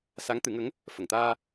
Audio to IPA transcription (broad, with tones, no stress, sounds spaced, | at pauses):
s a˧˥ ŋ t̪ ɨ˨˩˦ ŋ ə˧˥ ŋ | f ə˨˩˨ ŋ t̪ aː˧